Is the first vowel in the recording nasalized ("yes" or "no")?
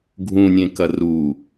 yes